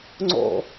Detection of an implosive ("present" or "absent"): absent